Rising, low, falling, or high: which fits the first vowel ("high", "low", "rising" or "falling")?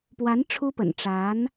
rising